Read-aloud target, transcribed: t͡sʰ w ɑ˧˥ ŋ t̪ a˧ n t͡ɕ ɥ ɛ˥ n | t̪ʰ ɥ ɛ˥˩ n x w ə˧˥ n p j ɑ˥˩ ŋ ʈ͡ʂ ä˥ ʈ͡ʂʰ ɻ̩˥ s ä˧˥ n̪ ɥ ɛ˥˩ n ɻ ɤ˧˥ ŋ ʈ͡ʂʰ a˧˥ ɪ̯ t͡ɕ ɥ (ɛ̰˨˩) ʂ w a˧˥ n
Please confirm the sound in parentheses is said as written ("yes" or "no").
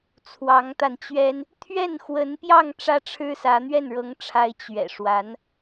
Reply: yes